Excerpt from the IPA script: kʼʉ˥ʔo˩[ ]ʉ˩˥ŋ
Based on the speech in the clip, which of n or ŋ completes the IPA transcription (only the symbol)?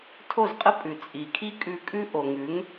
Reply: ŋ